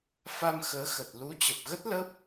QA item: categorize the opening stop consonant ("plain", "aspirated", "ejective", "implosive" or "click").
plain